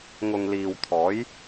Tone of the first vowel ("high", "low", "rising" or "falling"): low